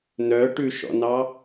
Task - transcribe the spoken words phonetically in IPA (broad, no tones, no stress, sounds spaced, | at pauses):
n œ ʈ ʉ ʃ ɔ̰ n ɑ